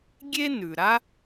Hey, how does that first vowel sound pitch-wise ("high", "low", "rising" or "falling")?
high